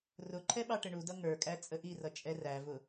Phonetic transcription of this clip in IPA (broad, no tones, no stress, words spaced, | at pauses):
rʊǃʰɛ ɓɑʈəɳudʌ ŋə˞kʼæ t͡sʼəʔirʌ t͡ʃʼɛrævʊ